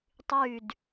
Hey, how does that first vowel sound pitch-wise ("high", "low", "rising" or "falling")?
falling